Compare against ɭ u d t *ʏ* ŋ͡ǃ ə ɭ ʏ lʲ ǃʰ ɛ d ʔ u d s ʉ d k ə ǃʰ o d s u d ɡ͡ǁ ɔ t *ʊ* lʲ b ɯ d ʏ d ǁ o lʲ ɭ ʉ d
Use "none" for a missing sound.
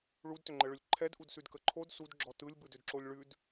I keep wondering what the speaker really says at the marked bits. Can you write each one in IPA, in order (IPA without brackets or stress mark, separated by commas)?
ʏ, ɯ